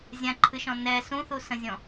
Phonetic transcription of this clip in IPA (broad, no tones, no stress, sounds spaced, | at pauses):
zʲ ã ǃʰ ɨ ʃ ɔ̃ n ɛ s ũ θ u s ə̃ zʲ ɔ̃